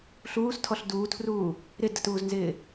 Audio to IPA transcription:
ɬ uː s tʰ ɔ ɬ d uː tʰ r uː | ɾ ɪ d ə t uː z n z ɪː

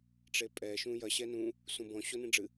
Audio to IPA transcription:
ʈ͡ʂ e pʼ ɛ ʃ ũ j ɐ ɕ ɛ n ũ | s ũ b ɔ̃ ɕ o n ĩ ɖ͡ʐ ɨ

